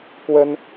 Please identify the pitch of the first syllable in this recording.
high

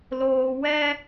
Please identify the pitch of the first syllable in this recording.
low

